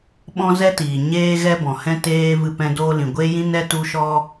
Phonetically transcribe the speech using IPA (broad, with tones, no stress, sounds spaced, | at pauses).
ɓ ɔ̃˦ z ɛ˦ t iː˨ ɲ eː˦ ɣ ɛ˦ b ɔ̃˨ h ɛ̃˦ t eː˧ v ɨ˧ p ɛ̃˧ d oː˦ l ĩ˨ ɡʷ e˦ j ĩ˦ n ɛ˦ t u˧ ʃ ɔ˦